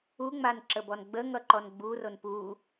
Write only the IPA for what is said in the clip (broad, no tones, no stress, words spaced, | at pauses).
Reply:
uŋ͡man ǁəbɔnɡ͡bəŋʌ ǃɔnɡ͡buron pu